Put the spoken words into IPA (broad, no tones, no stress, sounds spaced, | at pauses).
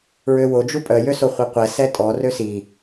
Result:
ɹ ø w o d͡ʒ u pʼ œ j ø s o χʷ e qʷ ɛ s ɛ tʼ ɔ r ø s i